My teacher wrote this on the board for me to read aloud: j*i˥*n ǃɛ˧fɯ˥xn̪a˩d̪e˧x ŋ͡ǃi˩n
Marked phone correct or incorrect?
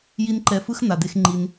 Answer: correct